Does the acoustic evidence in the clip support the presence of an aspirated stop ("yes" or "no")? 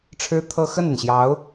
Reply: yes